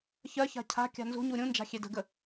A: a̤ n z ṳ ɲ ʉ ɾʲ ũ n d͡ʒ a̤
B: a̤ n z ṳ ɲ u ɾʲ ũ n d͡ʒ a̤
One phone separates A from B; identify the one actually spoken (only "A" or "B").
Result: B